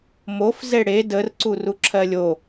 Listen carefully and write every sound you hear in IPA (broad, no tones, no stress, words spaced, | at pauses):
mof zeɽe dər ǀuruǁʰɜlʲo